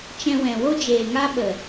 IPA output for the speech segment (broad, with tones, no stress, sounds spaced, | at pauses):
t͡ʃ ɛ̃˧ w ɛ̃˨ w o˦ d͡ʒ eː˨ ŋ a˦ ɓ ə˨